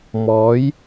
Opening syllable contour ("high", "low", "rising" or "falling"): rising